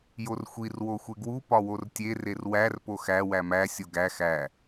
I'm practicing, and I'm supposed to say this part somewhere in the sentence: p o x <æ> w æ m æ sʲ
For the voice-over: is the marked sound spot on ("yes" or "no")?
yes